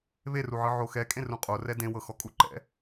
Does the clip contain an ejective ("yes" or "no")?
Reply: yes